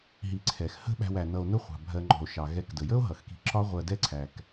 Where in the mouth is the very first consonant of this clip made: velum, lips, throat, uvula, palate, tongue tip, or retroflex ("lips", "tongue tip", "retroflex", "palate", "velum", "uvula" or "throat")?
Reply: throat